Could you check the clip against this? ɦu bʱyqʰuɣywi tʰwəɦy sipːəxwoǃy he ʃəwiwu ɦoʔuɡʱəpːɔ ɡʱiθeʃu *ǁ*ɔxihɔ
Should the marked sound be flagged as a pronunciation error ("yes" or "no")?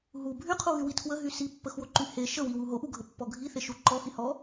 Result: yes